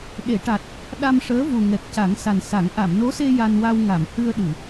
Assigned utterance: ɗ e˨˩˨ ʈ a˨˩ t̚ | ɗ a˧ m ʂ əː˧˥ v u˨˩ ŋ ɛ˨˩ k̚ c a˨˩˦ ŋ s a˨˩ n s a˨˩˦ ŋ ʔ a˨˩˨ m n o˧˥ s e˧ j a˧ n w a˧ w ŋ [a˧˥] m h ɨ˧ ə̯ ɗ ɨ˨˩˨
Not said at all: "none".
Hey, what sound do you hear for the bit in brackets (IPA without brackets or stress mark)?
a˨˩˨